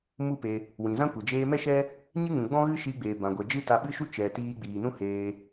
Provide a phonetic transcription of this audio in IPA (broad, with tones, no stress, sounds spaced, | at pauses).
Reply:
m u˦ p e˧ | w ĩ˨ z ã˦ kʷ e˨ d͡ʒ eː˧ m ɛ˦ ʃ ɛ˦ | ɲ ɨ˦ ŋ ũ˨ ɡ͡b ɔ̃˦ ɣ ɨ˦ ʃ iː˧ ɡ͡b eː˨ b ã˨ ɡʷ ɛ˨ d͡ʒ ɨ˦ t a˧ ɓ ɨ˦ ʃ u˦ t͡ʃ ɛ˨ t iː˧ ɡ͡b iː˨ n ũ˦ h eː˧